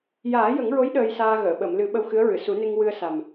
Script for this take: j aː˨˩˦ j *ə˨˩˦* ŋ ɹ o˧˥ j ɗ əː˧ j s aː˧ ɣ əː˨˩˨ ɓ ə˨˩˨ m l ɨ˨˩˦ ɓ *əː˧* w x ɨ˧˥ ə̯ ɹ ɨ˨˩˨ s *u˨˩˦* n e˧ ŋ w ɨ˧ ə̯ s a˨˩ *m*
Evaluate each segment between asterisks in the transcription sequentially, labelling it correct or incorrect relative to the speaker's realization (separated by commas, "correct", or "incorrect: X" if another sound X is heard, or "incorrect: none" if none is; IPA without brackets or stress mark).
correct, incorrect: ə˧, correct, correct